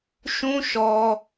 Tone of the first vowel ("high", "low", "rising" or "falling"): high